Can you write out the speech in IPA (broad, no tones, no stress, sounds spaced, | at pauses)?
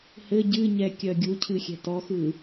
h ɘ ɟ ɨ ɲ ɛ kʲ œ ɡʲ u cʰ ɨ xʲ ɛ̤ t ɔ x ɯ